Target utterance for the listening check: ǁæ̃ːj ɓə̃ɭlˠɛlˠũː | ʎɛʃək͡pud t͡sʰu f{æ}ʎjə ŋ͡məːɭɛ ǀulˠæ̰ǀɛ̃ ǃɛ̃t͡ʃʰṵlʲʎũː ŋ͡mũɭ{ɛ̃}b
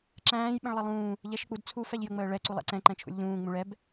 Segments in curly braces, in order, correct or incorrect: correct, incorrect: ɛ

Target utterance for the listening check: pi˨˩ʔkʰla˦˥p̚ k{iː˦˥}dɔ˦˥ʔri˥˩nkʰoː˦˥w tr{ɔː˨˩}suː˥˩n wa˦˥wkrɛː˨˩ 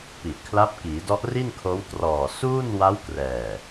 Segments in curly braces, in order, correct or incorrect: incorrect: iː˩˦, correct

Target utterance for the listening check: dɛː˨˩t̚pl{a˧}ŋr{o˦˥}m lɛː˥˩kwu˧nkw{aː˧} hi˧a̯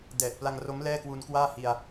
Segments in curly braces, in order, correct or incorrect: correct, correct, incorrect: aː˥˩

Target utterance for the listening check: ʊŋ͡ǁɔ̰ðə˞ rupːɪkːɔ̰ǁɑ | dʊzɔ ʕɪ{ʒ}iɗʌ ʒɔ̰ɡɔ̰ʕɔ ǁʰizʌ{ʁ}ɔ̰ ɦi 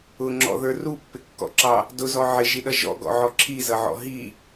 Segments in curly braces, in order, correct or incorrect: correct, incorrect: ʕ

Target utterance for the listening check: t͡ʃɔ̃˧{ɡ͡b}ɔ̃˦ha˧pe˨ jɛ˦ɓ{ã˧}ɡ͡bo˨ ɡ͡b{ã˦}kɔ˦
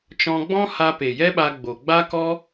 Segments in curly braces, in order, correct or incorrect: correct, incorrect: a˧, incorrect: a˦

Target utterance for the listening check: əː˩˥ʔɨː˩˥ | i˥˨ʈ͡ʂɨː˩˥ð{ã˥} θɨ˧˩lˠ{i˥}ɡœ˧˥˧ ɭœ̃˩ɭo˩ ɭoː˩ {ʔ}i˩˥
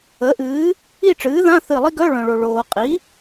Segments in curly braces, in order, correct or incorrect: incorrect: ã˧˥˧, correct, incorrect: qʼ

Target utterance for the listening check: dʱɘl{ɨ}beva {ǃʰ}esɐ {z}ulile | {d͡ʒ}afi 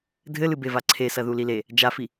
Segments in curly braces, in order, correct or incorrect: correct, incorrect: ǀʰ, incorrect: ð, correct

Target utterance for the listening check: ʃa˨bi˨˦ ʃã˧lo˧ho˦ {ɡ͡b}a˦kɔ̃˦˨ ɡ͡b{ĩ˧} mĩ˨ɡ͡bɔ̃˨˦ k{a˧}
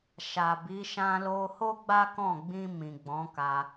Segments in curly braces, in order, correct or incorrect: correct, correct, correct

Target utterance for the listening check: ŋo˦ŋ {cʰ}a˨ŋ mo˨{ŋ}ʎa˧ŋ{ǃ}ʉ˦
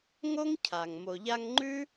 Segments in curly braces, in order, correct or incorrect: correct, incorrect: none, incorrect: ŋ͡ǃ

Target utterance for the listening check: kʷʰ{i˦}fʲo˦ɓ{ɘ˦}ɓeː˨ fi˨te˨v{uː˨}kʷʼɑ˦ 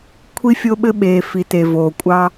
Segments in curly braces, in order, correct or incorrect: correct, correct, incorrect: oː˨

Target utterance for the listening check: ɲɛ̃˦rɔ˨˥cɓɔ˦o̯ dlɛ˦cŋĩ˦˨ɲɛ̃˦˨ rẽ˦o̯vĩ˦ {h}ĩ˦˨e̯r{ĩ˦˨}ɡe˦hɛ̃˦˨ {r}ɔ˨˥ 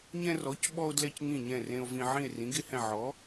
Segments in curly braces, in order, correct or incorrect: incorrect: ʕ, incorrect: ĩ˨˥, incorrect: ʕ

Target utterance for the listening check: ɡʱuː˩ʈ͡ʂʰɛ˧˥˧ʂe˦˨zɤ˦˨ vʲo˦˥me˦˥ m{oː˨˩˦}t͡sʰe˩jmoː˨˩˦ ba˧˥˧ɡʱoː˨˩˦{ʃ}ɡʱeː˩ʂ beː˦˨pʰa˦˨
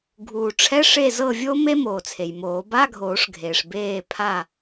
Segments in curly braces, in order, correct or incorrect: incorrect: oː˩, incorrect: ʂ

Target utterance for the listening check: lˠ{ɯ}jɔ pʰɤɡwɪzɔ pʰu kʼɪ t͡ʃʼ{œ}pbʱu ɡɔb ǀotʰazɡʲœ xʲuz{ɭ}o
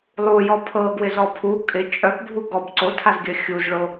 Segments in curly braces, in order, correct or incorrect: incorrect: u, correct, correct

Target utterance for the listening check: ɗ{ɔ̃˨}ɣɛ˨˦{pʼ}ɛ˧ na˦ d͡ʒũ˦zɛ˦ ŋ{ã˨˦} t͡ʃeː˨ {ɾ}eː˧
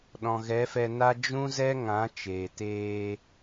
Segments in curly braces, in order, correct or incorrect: correct, incorrect: f, correct, incorrect: t

